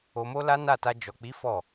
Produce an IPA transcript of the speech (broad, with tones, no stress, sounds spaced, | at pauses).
o˧ m o˦ l a˦ n a˦˨ t a˧ d͡ʒ ɔ˨ k͡p i˨˦ f ɔ˦˨